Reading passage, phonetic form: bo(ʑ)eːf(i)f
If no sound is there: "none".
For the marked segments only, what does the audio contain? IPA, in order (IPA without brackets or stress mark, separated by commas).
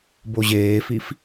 ʑ, i